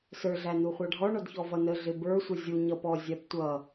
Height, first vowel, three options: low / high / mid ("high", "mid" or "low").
mid